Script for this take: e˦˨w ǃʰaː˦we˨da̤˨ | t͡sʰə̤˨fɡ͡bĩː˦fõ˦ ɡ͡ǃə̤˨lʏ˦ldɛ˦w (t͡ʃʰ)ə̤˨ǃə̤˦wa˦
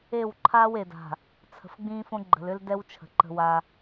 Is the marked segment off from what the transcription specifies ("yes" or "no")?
no